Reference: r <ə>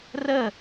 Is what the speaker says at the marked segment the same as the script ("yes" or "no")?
yes